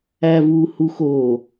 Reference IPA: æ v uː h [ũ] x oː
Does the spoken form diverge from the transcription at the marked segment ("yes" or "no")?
yes